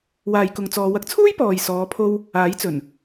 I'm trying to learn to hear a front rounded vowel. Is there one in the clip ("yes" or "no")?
no